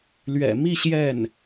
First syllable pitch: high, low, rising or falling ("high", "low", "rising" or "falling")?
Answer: low